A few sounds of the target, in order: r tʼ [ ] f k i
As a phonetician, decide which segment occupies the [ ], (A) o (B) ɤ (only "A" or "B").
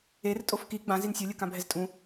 A